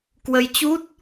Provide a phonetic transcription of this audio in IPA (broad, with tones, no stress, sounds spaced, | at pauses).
k w ə˧ j t͡ɕ u˦˥ t̚